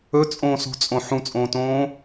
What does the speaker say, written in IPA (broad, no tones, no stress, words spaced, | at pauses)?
ɵt͡sʼõːsṳt͡sʼõ ħũt͡sʼõːtõː